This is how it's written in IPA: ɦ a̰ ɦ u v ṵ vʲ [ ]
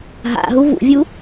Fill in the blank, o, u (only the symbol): u